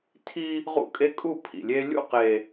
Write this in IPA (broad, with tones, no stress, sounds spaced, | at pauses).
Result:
tʰ i˦ | ʁ ṵ˦ kʼ e˦ kʼ u˦˨ pʰ ḭ˨ lʲ e˦ lʲ ṵ˦˨ q e˨